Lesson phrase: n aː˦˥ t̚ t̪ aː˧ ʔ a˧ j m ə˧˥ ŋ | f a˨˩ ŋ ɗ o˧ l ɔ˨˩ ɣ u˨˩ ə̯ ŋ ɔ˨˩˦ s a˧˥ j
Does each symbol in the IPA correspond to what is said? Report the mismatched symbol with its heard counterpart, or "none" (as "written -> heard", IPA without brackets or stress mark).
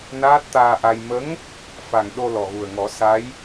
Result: none